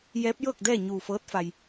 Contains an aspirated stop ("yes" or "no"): no